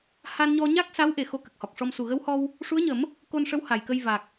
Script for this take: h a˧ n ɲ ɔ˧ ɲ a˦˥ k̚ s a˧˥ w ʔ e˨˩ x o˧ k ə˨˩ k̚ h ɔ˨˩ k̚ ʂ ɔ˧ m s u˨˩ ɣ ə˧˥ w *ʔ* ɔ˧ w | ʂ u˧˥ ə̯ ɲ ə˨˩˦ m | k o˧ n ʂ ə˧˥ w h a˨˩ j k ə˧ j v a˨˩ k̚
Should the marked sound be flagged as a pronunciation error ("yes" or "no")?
yes